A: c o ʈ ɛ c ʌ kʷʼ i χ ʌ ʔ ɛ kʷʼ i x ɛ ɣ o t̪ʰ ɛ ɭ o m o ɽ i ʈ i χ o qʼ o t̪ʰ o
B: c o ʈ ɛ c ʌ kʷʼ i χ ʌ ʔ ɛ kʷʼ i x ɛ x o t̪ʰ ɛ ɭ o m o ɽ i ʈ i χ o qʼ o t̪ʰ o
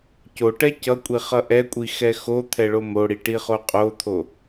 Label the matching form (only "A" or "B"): B